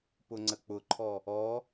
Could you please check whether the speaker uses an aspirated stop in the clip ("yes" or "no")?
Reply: yes